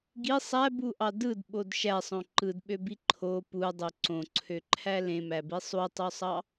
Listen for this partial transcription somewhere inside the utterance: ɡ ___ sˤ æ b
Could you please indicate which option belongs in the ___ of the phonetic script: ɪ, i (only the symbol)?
i